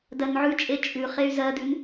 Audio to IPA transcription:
d ɜ n ʕ ʉ t͡ʃʼ e t͡ʃʼ ʉ χ e y̯ z ɜ d ʉ n

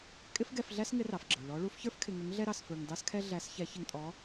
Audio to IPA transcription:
kʼ ɪ˥ f ɡ ɛ˧ f ɮ æ˥ s ŋ ɪ˧˥ r ɑ˩ f ɡ͡ǁ ə˞˩ ɭ ɔ˧˥ ɭ u˧˥ f ç ə˞˥ f kʰ ɪ˧ ŋ ə˧˥ ŋ ɮ ɛ˥ ɾ ɑ˧ s f ə˞˧ ŋ d ɑ˥ s kʰ ɛ˥ ɮ æ˧˥ s ç ɛ˧˥ ç ɪ˧ ŋ tʼ ɔ˧˥

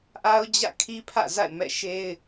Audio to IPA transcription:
ʔ a˦ ʊ̯ d͡ʑ ä̰˦˨ kʰ i˦ pʰ ä̰˦˨ z a̰˦˨ ɪ̯ m ɛ̰˦˨ ʃ e˦ ɪ̯

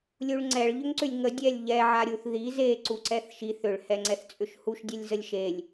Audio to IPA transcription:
lʲ u ɭ ŋ͡ǀ ɛ ɭ ʎ ʏ ŋ ǀ ʏ lʲ ŋ ə dʲ ɛ lʲ ʎ ɛ ʕ a ɾʲ u θ ð i z e ǀ u ǀ ɛ θ ʃ i θ ʏ ɭ h ɛ ŋ͡ǀ ɛ θ t͡sʼ ʏ ʃ h u ʃ dʲ ɛ lʲ z ə lʲ ʃ e lʲ

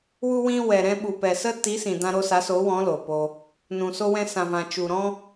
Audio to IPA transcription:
w u˧ w ĩ˧ w ɛ˨ ɾ ɛ̃˧ ɓ u˨ p ɛ˨ s ə˦ t i˨˦ s ĩ˨ d ã˧ ɾ o˧ s a˨˦ s o˨˦ w ɔ̃˨˦ l o˨ p o˧ | n ũ˨ s o˧ w ɛ̃˧ s ã˨ v ã˨ t͡ʃ u˨ ɾ ɔ̃˦

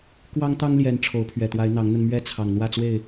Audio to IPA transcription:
k w ɑ˦ ŋ t̪ ɑ˦ ŋ l j ɛ˨˦ n ʈ͡ʂʰ o˨˦ ʊ̯ pʰ ɥ ɛ˨˩ t̪ w a˨˦ ɪ̯ n̪ ɑ˨˦ ŋ n̪ ə˧ n m ɥ ɛ˥˨ t͡sʰ ɑ˨˩ ŋ n̪ w ä˥˨ t͡s w e˥˨ ɪ̯

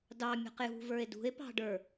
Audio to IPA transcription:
d ɑ mʲ ɔ̤ q j ṳ v ə˞ e̯ d ṳ e̯ p ɑ̤ ɖ ə˞

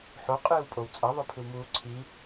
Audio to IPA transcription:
ħ o qʼ ɨː w pʼ o w t͡sʼ ɐ ðˤ o pʰ ɨ w m uː ǀʰ i

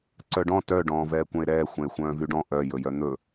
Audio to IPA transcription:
ǀ œ ɖ ɔ̃ t œ ɖ ɔ̃ː v ɛː kʷ œ̃ e̯ ɾ ɛː xʷ ɛ̃ e̯ xʷ œ̃ː v y ɖ ɔ̃ ʔ œ j ɵ j œ n̪ ɵ

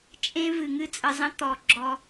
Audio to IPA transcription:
t͡ʃʼ ẽ˦ v ɨ˨ ŋ ɨ˦ t͡sʼ ə˧ zˤ ə̃˦ t̪ ɔ˨ ɡ͡ǁ ɔ˧

